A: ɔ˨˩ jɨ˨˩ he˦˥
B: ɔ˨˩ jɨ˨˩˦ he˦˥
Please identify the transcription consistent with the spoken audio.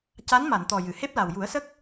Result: A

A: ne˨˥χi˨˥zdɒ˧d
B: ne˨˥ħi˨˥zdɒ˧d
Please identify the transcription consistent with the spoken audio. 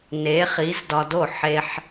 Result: A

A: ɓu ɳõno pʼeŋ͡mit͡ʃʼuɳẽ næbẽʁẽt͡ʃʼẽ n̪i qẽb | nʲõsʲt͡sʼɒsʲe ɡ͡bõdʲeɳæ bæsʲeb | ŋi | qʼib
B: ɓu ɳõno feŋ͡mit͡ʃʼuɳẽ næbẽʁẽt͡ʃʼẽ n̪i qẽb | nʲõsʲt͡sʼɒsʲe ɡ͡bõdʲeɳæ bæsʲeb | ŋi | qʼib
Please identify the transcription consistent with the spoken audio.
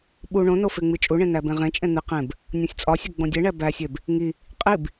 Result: B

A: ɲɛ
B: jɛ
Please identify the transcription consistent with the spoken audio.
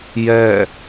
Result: B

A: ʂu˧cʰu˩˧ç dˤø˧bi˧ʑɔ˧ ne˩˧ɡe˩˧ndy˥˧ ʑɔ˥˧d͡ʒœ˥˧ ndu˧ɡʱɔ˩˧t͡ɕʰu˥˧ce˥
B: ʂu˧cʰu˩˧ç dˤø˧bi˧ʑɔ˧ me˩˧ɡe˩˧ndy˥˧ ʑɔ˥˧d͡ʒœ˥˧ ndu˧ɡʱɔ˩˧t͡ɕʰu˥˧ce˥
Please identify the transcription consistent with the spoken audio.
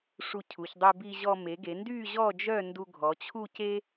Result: B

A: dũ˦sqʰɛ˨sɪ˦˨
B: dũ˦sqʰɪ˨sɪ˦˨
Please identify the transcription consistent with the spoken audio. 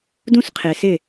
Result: B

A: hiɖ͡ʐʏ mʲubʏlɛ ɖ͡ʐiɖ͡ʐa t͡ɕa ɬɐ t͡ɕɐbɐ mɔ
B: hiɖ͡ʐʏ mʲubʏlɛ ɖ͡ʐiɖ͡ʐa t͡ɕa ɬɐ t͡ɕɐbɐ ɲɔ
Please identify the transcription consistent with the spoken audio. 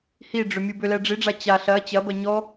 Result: B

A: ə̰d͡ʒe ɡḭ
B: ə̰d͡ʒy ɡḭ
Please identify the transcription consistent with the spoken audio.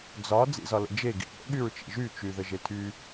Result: A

